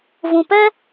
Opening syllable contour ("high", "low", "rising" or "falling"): low